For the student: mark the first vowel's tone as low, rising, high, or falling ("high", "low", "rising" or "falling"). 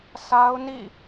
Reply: high